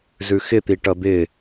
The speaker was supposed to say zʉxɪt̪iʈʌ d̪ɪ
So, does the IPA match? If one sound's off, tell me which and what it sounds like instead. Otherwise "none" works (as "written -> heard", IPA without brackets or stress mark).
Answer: none